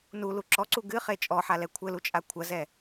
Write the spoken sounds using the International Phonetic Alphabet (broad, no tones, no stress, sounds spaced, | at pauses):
n u l u ǁ ɔ ǀ u ɡ ɨ χ e t͡ʃʼ ɔ ħ a l ɛ kʷʰ ɘ l u t͡ʃʼ a kʷʰ ɐ z ɛ